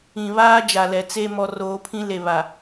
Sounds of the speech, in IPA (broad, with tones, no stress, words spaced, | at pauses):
ĩ˨βaː˦ d͡ʒa˨lɛ˨t͡se˦ mɔ˨roː˨˦pʰĩ˦ le˨βa˨